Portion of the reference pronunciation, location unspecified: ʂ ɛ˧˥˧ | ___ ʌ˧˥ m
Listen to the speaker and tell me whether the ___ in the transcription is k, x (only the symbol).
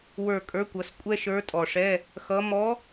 x